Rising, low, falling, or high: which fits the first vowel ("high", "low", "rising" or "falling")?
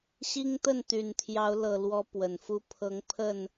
high